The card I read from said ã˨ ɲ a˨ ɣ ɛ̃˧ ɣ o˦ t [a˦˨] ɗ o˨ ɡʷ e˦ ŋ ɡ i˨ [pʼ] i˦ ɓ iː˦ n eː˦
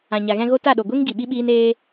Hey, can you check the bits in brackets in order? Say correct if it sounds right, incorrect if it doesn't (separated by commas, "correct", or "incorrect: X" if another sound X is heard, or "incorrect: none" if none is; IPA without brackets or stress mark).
correct, incorrect: ɓ